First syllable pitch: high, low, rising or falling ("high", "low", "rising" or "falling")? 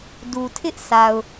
low